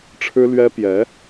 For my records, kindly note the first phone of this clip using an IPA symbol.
ʈ͡ʂʰ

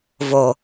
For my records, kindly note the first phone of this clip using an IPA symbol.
v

